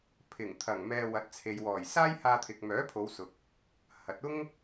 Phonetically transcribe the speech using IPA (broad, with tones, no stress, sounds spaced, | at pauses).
pʰ ɪ˨˩ ŋ t̪ʰ ɐ˨˩ ŋ m ɛː˧ w ɐ˨˥ t̚ t͡sʰ e˨ j w ɔː˨˩ j s aː˥ j h aː˧ t̪ʰ ɪ˨ k̚ m œː˨˥ pʰ o˨˧ w s ʊ˨ k̚ | h ɐ˨˥ t̚ ʊ˥ ŋ